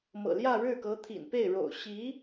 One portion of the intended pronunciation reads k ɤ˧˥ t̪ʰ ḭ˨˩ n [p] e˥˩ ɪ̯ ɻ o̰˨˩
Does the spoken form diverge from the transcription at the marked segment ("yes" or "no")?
no